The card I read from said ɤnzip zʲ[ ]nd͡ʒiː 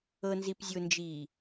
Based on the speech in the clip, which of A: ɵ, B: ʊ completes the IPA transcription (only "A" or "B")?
B